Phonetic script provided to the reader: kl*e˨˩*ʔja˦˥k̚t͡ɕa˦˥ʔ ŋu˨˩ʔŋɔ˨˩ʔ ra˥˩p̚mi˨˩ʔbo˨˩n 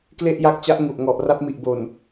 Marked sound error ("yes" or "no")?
yes